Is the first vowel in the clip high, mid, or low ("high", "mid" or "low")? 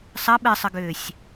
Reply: low